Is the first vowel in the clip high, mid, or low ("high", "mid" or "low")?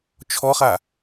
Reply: mid